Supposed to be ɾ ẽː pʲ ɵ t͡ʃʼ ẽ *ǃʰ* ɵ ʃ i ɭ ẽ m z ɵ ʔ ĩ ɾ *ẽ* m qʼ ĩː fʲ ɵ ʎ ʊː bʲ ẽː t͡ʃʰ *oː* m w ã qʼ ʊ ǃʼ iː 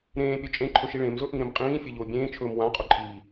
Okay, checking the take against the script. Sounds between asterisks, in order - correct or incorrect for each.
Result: correct, correct, incorrect: ɵː

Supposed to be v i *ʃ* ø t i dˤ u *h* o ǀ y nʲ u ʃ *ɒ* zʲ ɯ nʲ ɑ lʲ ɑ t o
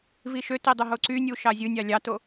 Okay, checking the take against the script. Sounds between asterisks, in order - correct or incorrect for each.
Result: correct, incorrect: ɦ, incorrect: ɑ

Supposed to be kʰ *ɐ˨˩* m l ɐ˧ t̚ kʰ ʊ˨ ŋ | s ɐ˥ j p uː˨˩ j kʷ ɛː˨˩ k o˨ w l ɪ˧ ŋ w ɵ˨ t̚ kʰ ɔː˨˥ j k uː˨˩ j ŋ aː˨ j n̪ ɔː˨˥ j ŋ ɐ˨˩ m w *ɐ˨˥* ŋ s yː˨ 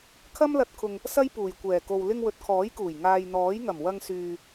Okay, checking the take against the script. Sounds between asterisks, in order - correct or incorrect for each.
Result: incorrect: ɐ˥, incorrect: ɐ˧

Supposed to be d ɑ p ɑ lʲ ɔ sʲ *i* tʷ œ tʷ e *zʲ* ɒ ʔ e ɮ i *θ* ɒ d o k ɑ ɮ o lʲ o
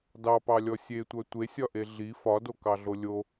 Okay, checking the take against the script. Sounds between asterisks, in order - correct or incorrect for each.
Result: incorrect: e, incorrect: sʲ, incorrect: f

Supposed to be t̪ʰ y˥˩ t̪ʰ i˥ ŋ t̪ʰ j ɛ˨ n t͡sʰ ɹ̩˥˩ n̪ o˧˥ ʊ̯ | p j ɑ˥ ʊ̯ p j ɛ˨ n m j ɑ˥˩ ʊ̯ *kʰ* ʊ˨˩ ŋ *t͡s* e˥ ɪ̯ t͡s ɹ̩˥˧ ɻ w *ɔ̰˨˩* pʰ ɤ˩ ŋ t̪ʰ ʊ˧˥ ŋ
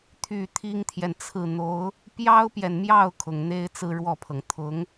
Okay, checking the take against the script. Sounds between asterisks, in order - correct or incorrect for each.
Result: correct, incorrect: n̪, incorrect: ɔ˥˩

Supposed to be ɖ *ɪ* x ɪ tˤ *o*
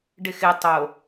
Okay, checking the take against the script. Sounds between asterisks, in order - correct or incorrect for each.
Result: correct, correct

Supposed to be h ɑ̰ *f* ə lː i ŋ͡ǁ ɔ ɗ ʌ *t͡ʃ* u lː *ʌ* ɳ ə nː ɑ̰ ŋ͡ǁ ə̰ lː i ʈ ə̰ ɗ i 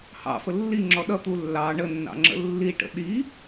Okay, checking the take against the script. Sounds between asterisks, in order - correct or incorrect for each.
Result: correct, incorrect: t̪, incorrect: ɑ

